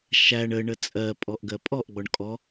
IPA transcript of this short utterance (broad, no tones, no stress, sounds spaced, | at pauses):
ʃ æ ɳ ə ɳ ə t͡sʼ ɜ pʼ ɔ ʔ ɡ ɜ pʼ ɔ ʔ ɡ͡b ɔ ɳ kʼ ɔ